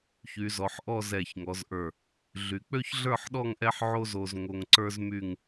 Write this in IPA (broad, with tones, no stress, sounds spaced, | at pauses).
ç y˩˧ z ɔ˩˧ ħ ʔ ɔ˥˧ z ɛ˧˩ ç ŋ ɔ˩˧ z ʔ ə˞˧˩ | ɮ y˩˧ k͡p ø˥ ç ɮ ə˞˥˧ ħ ɗ ɔ˥˧ ŋ ʔ ɛ˥ ħ ʕ o˥ z o˧ z ŋ o˧ ŋ ǀ ə˞˥ z m y˥˧ ŋ